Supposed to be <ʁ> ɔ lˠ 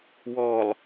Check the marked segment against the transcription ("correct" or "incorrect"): incorrect